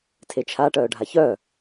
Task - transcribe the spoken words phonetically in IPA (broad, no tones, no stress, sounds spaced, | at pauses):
tʰ e t͡ʃʰ a ʈ œː ɖʱ a ç œ